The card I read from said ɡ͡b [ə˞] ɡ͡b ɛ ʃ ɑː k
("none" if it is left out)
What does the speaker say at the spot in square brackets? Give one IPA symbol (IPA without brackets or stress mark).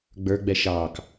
ə˞